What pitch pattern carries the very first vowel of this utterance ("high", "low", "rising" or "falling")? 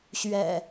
low